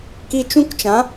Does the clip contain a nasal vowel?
yes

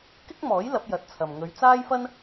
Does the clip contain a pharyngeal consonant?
no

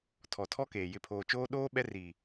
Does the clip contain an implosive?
yes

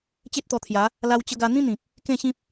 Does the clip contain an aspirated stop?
yes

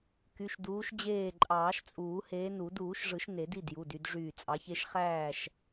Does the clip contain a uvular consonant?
yes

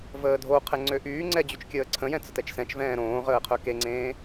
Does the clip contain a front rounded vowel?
yes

